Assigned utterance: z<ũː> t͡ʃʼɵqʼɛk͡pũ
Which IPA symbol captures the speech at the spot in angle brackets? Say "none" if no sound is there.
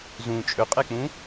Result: ũ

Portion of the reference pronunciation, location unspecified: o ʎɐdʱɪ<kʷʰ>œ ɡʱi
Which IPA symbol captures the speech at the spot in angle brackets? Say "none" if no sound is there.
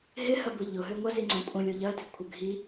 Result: kʷʰ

